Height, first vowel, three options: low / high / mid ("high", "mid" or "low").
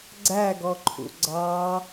low